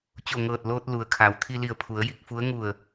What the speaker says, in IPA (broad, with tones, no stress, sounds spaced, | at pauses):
t͡ɕ o˧˩ ŋ ɤː˧˩ t̚ l oː˧ t̚ l u˩ ə̯ kʰ a˩˧ w t̪ʰ i˧ l i˧˩ ə̯ pʰ u˩˧ ə̯ j i˧ k̚ f u˧˥ ə̯ ŋ u˧˩ ə̯